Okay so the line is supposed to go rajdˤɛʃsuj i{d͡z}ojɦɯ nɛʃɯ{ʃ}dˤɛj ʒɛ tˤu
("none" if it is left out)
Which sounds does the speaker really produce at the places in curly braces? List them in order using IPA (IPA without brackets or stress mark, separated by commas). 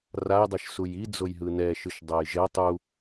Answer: d͡z, ʃ